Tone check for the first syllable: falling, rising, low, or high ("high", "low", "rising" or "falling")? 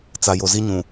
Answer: low